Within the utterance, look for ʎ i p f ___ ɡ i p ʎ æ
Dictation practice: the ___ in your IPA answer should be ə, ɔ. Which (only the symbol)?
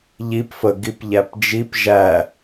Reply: ə